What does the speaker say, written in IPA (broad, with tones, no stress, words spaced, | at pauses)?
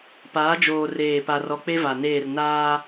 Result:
paː˨˦ d͡ʒoː˨ reː˦˨pa˦rɔ˦ k͡pe˦va˨neː˦˨r naː˦